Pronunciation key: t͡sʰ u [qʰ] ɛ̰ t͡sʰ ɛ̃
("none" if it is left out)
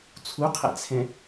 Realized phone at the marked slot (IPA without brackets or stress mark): qʰ